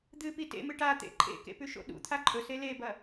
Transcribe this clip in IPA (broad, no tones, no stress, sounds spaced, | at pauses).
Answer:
d̪ ɨ p i t ḛ m ɨ ʈ a t̪ ḛ ǃʼ ḛ k ḛ p ʉ ʃ o̰ ɗ ṵ t̪ʰ a ǃʼ ɵ s e l e b ɐ